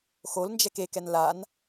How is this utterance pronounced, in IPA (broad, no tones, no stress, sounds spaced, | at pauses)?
x o l n d͡ʒ ɛ k e k ɛ n l a n